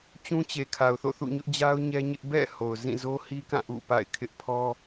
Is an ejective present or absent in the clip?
absent